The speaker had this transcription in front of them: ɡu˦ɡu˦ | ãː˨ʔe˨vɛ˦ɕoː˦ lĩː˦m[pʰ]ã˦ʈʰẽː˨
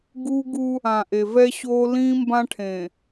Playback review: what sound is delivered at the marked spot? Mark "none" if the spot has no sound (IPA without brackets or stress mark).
b